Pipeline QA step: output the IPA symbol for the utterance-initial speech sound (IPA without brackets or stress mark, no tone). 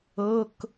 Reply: ɤ